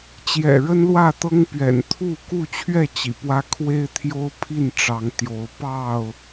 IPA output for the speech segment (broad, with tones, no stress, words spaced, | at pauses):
t͡ɕjɛ̰˨˩ɻə˦n lwä˥˨t̪ɤ˦ŋpɥɛ̰˨˩n t̪ʰu˥˨ ku˥˨t͡ɕʰɥɛ˥˨ t͡ɕḭ˨˩pwä˦ kʰwe˦ɪ̯t̪ʰjo˦ʊ̯pʰi˥˨n ʈ͡ʂɑ˨˦ŋ t̪jo˨˦ʊ̯ pɑ˥˨ʊ̯